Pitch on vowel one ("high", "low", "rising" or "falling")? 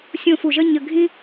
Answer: falling